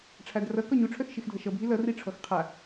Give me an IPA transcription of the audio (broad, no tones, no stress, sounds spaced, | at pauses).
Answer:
ʈ͡ʂʰ a d r ʌ k ɔ ɲ u ʈ͡ʂʰ œ x ʃ i x dʱ ʌ ʃ ʌ bʱ i l ʌ r i ʈ͡ʂʰ ɔ x qʰ a